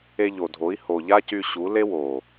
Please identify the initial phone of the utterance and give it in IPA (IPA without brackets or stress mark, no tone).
e